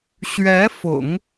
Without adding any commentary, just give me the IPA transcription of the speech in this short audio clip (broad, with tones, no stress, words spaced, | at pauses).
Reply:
ɕɥɛ˧˥fʊ̰˨˩˦ŋ